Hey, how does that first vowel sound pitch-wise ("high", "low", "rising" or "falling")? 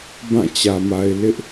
falling